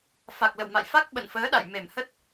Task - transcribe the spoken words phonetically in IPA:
fa˨˩k̚lə̰˧˨wma̰˧˨jfa˦˥k̚ ɓə̰˧˨nfəː˨˦ɗa̰˧˨j me˨˩mhə˦˥t̚

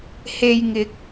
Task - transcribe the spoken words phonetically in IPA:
he˨j ŋɪ˨˥k̚

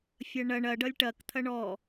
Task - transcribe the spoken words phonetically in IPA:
fʲɐɳɐɳ ɐ ɖʌlʲʈɐk t̪ʰɐɳɔ

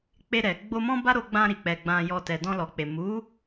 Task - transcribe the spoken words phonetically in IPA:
k͡pe˧ɾɛ˨ ɡ͡bo˧mɔ̃˦ba˦ɾo˧ ɡ͡bã˧ɾi˨k͡pɛ˨ ɡ͡bã˨jɔ˨ tɛ˨dɔ̃˧lɔ˨k͡pe˨ mu˨˦

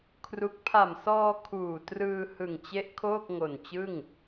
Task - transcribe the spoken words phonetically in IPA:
kʰru˦˥k̚ pʰa˨˩msɔː˧ kʰuː˨˩trɯː˧ hɯ˨˩ŋt͡ɕe˦˥ʔ kʰoː˥˩k̚ŋo˨˩n t͡ɕɯ˥˩ŋ

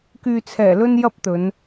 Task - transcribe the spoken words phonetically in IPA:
kyː˨t͡sʰɛː˨˩ lɵ˥njɐ˥p̚t̪ɵ˨˧n

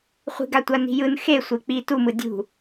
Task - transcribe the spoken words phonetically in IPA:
χʷi̤ɡatʷa ni̤jɯn xe sʷek͡pi tumɯ dʲṳ

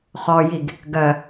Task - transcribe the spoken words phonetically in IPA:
χɔjiɡ | ɡɜ

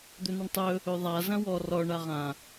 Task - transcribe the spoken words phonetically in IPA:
d̪ɵnəɳtˤɵ | ɵðˤa zɐ̃wɔ rɔ ɳaʁã

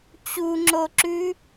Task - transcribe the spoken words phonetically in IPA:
t͡ɕuŋ͡ǁoǁʉ

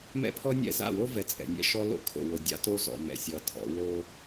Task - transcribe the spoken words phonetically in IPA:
mɛ̰˦pʰɔ˦nʲɛ̰˦˨ za̰˦˨wo˦vɛ˨ t͡sʼɛ̰˨nʲɛ̰˦ʃɔ˦lo̰˦ kʰo̰˨wo˨ dʲa̰˦to˦ zɔ̰˨mɛ̰˨sʲʌ˨tʰɔ̰˨˦ wo˦

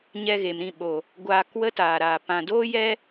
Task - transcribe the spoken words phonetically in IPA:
ɲɛ˧ɣe˨m ɾĩ˦˨ ɓo˨ | ɡʷaː˧k wə˦taː˨ɾaː˨ pã˨doː˦jɛ˦

